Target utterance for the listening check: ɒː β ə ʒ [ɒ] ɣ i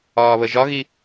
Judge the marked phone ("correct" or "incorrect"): correct